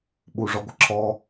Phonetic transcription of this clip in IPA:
ɓ u ʐ ɔ ɡʷ ə ǁʰ ɔ

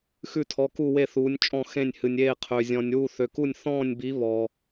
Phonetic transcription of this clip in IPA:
x ʉ˥˧ tʰ ɔ˧˥ k u˥˧ w e˥˧ θ uː˧˥ nʲ t͡ʃʼ ɔ̃˥˧ x ẽ˥˧ nʲ h ɨ˧ nʲ eː˥˧ qʰ ø˧ zʲ ɔ̃˧ nʲ w u˥˧ θ ø˧ k u˥˧ nʲ θ ɔ̃ː˥˧ nʲ b i˧˥ β ɔ˧

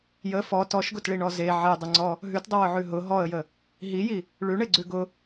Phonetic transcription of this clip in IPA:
j ə f ɔ t ɔ ʃ ɡ ʊ t ɭ i ɳ ɔ z e ʕ e dˤ ə ŋ͡ǀ ɔ | ɦ ʉ t dˤ ə w ʊ ʕ ʉ ɦ ʊ ɦ ɔ ə̯ j ə | ɦ i j i | ɭ ʉ ɳ e ɡ͡ǀ ʉ ɡ ʊ

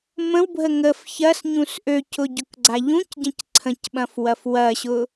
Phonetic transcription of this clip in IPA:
m ə̃ w bʱ ə ŋ ə f ç ɐ s ɲ ũ s ʔ ø c ʊ ɟ ʊ k ɡ͡ǀ a ʎ ũ c ɟ ɐ̃ c ǀʰ ə̃ c ɓ ɐ̃ f w ɐ f w ɐ ɕ ʊ

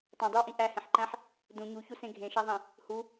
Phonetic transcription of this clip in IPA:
tˤ õ dˤ i w ʔ ĩ ʔ æ h ẽ ħ ǃ æ̃ ħ | d ũ ɲ u ç u s ẽ ɡʱ ẽ ʃ æ ðˤ ĩ | h u

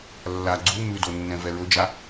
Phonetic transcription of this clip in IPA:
lː a ɡ͡ǀ u m ʉ d o nː ɛ̃ v ɛ ɹ ɵ d͡ʒ a

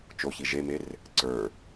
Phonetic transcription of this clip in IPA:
t͡ʃ o ç i ʒ e m e r | ǀ ə˞

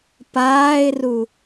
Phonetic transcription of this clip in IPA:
p aː ɪ̯ r u

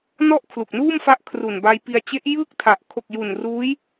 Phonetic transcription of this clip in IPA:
n ɔ˥˩ ʔ kʰ l u˨˩ k̚ n uː˥˩ m f a˦˥ ʔ kʰ r u˨˩ n b a˧ j p i˧ a̯ t͡ɕ e˦˥ ʔ j ɯː˥˩ k̚ tʰ a˨˩ ʔ kʰ o˨˩ k̚ j u˨˩ n r uː˦˥ j

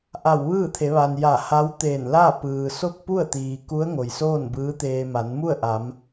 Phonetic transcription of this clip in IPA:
ʔ a˧˩ w ʋ ɯː˥˨ t̪ʰ e˩˧ ʋ a˩ n j a˧˩ h a˧˥ w t̪ eː˧˩ n l a˥˨ p ɯː˩ s o˥˨ k̚ p u˥˨ ə̯ t̪ iː˩ k u˧˥ ə̯ ŋ o˩ j s oː˥˨ n b ɯː˧˥ t̪ eː˧ m a˩˧ n m u˥˨ ə̯ ʔ a˩˧ m

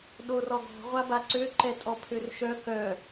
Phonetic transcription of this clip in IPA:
ɗ o r ɔ ɡ ɔ̤ ʁʷ a b a ǀ ø ǃ ɛ tʼ ɔ pʰ ø r ʃ œ k œ

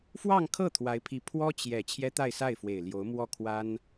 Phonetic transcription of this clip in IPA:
f w ɑ˥˧ ŋ kʰ ɤ˥˩ t̪ʰ w a˧˥ ɪ̯ pʰ i˧˥ pʰ w ɔ˥ t͡ɕ j ɛ˨˩ t͡ɕʰ j ɛ˥ t̪ a˥˧ ɪ̯ s a˥˩ ɪ̯ f w e˨˩ ɪ̯ l j o˧˥ ʊ̯ m w ɔ˥˩ kʰ w a˥ n

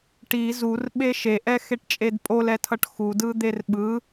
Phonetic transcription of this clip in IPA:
ʈ i z u r ɓ e ʃ e ʔ ɛ x e ʈ t͡ʃʼ e d pʼ o l ɛ tʰ ʌ ʈ x u d ɯ d̪ e r ɓ ɯ

